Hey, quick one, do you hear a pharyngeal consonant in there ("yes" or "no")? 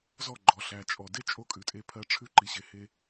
no